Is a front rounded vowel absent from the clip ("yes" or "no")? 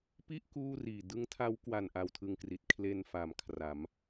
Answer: yes